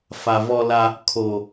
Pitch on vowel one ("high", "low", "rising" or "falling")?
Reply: low